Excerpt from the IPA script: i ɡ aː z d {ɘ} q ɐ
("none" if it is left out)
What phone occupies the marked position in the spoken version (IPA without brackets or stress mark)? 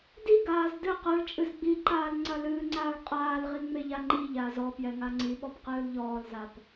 ɘ